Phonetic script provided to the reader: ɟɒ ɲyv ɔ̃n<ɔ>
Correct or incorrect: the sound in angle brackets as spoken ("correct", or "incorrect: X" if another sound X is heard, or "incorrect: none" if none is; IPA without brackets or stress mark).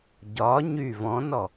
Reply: correct